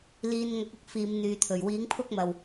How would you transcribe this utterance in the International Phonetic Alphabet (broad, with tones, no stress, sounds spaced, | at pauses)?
l iː˨˧ n ŋ ɐ˨˥ k̚ ʊ˥ k̚ f iː˨˧ m n̪ yː˨ t̪ʰ ɵ˨˩ ɥ w iː˨˥ ŋ pʰ ʊ˥ k̚ m ɐ˨ w